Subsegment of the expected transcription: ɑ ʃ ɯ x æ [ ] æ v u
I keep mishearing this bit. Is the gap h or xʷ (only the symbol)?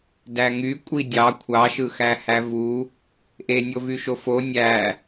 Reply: h